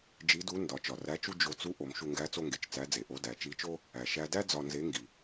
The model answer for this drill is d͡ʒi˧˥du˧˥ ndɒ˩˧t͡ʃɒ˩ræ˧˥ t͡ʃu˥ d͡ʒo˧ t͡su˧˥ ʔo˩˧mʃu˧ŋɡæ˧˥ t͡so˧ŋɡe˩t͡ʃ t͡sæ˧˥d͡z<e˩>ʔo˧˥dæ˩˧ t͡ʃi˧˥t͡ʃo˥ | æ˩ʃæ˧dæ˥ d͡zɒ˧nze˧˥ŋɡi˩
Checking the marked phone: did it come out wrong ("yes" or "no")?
no